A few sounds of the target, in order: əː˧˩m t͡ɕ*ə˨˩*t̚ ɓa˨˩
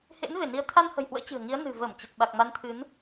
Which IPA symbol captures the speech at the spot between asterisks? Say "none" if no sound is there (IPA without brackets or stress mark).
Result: ə˨˩